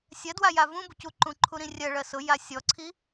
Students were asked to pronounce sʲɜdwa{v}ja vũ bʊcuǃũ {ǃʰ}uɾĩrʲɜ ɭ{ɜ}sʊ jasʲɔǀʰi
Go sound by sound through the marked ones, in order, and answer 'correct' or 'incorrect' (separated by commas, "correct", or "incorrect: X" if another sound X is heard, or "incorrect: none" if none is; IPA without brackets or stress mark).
incorrect: none, correct, correct